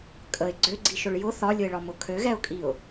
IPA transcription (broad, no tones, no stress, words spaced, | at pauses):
kʼəɪ̯ ɡ͡ǀøɡ͡ǀiʃʊɭ jʊ θɒlʲʊɪ̯ɭɒmʊ kʰøɣɛʊ̯kʼiʊ̯